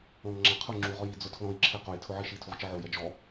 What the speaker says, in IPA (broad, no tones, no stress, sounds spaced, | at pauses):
ɔ̃ ŋ ŋ͡ǁ ã qʰ ʊ ŋ͡ǁ u ʁ ɔ j i d͡z ʊ tʰ l ɔ̃ j ǁʰ e q o j tʰ ʊ ʕ i ʃ i tʰ u ʁ t͡ʃ ɪ ʕ o j ɛ d͡ʒ ɔ